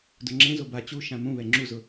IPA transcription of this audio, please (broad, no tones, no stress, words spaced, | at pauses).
dʊŋ͡ǁẽzo ba t͡ɕu ʃãmũβɛ ŋ͡ǁuzʊ